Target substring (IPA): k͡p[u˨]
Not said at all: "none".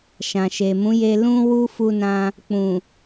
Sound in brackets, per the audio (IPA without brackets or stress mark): ũ˨